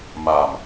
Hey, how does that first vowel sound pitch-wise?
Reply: low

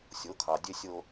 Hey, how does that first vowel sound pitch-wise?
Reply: rising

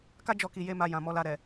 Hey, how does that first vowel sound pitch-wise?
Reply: high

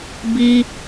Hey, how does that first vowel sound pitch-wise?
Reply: high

